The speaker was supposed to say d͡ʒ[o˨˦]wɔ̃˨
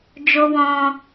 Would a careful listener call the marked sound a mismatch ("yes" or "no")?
yes